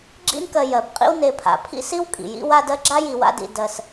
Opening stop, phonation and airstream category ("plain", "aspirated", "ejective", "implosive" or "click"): click